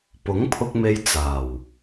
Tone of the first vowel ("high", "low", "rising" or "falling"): rising